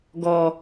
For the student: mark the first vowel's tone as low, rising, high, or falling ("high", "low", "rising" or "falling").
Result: low